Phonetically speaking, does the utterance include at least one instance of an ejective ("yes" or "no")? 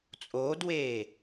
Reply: yes